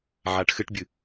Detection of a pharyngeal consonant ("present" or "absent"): present